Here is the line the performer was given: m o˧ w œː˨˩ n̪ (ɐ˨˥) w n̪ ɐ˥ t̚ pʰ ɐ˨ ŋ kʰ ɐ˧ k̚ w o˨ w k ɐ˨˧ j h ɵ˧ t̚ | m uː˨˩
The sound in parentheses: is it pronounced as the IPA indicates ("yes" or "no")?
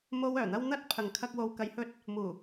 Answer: no